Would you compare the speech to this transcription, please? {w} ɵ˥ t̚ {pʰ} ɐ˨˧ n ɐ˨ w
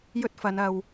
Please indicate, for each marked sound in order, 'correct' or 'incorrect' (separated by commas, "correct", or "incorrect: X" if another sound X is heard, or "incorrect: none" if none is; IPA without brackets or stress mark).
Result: incorrect: j, incorrect: f